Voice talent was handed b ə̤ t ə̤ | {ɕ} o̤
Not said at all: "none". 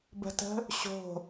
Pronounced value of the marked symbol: ɕ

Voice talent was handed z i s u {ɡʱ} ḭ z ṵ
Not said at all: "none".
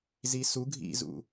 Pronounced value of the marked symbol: ɡʱ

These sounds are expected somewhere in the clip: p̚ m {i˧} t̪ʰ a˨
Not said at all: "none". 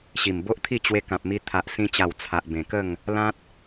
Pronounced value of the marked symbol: i˧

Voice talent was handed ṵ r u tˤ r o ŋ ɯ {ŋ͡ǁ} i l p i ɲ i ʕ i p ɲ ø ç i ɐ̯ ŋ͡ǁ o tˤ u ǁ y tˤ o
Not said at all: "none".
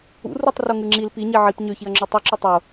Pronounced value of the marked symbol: ŋ͡ǁ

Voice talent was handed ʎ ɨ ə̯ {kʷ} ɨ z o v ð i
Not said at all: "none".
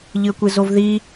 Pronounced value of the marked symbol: kʷ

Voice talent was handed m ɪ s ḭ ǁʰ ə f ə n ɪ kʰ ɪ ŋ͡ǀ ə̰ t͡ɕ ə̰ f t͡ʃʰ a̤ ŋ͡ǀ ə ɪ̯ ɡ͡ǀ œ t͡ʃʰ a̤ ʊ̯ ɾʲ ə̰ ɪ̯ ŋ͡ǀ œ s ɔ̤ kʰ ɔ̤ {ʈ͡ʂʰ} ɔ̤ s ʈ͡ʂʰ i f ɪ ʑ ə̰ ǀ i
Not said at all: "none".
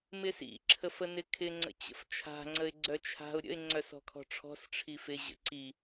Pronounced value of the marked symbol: ʈ͡ʂʰ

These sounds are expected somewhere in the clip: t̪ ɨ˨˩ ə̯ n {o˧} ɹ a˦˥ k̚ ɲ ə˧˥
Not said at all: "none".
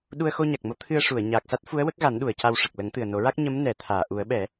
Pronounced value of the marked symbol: o˨˩˦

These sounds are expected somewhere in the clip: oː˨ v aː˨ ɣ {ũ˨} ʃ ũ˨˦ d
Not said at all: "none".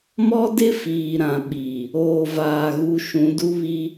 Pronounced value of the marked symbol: u˨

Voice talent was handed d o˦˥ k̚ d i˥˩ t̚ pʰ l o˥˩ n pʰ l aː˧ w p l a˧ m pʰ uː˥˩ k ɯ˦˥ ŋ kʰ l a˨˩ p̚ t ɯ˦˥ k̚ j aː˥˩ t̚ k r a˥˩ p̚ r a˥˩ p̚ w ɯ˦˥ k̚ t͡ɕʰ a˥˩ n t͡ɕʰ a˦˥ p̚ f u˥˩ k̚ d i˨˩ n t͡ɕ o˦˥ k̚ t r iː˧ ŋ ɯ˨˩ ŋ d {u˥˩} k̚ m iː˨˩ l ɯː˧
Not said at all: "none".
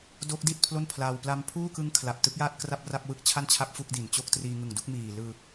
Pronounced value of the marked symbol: u˥˩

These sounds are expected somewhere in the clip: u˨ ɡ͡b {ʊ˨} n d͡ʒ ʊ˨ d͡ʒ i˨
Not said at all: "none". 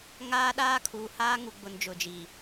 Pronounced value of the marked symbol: ʊ˨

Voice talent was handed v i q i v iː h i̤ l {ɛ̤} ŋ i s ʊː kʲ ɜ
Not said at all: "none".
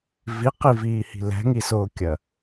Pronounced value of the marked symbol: ɛ̤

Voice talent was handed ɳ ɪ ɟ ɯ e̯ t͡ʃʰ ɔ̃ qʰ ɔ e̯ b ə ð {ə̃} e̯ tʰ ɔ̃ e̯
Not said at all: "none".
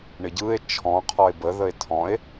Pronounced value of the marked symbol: ə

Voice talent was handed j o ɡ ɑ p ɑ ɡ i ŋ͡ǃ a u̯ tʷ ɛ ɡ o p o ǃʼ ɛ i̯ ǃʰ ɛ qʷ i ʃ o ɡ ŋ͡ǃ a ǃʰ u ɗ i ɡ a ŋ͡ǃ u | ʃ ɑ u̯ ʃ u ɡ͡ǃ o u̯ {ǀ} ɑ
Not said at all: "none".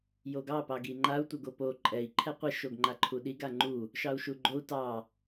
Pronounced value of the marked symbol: t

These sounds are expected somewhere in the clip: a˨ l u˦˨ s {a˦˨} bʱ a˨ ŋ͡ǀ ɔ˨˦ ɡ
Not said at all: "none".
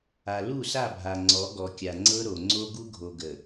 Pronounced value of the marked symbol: a˦˨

